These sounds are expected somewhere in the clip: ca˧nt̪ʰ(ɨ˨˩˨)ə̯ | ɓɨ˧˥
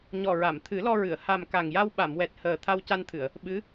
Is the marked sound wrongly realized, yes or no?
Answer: no